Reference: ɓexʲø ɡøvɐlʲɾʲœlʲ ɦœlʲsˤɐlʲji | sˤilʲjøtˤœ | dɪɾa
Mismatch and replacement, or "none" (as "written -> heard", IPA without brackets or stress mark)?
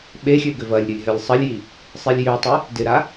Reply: none